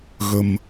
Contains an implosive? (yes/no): no